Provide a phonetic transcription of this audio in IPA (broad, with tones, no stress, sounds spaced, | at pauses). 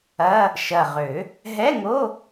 ɐ˧˥˧ | ʃ ɐ˨˩ ʁ ø˨˩˦ | ɦ ɛ˧˥˧ ŋ o˧˥˧